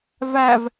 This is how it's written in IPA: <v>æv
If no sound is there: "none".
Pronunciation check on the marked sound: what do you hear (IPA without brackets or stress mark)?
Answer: v